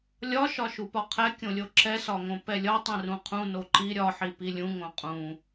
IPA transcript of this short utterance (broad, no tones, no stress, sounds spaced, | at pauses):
lʲ ɒ ʃ ɒ ʃ u p ɒ qʰ ɛ kʲ õ lʲ o ǁ ɛ s ɒ ŋ õ p ɛ lʲ ɒ tˤ ĩ r ũ qʰ ũ n o ǃ i ɾʲ ɒ ħ i p i lʲ ũ ŋ õ qʼ ũ